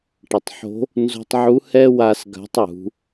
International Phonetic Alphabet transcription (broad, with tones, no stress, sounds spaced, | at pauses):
ʈ ɐ˩ tˤ ħ o̤˧˥ | n z o̤˧ tˤ ʕ u˧˥ h ɛ˥ w a˧ s ɡ a̤˧˥ tˤ j ṳ˩˧